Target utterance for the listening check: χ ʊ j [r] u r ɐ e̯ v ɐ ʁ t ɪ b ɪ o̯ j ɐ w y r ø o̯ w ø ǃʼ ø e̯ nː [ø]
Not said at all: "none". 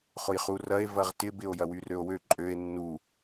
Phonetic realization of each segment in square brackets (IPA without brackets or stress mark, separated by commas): χ, u